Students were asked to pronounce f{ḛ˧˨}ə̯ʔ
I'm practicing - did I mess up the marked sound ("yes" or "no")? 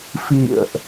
yes